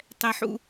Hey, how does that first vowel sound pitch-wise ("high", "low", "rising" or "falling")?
high